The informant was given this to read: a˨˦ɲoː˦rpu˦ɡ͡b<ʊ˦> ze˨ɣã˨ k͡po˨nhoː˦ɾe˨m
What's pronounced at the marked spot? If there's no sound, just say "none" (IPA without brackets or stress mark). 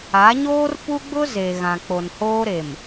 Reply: ʊ˦